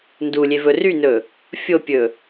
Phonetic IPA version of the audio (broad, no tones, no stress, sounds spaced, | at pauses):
n d u lʲ e v ɵ r y n ɵ | fʲ o pʲ ɵ